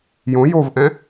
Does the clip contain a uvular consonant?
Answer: no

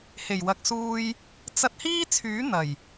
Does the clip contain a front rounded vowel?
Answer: yes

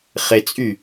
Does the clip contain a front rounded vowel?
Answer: yes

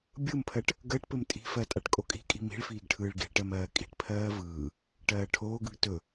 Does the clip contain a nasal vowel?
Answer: no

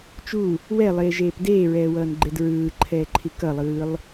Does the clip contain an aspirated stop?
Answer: yes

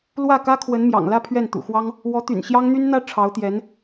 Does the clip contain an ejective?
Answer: no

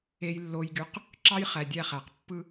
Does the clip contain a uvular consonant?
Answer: yes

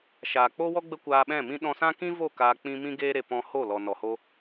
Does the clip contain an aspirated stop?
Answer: no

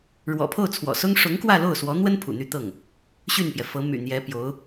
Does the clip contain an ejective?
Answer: no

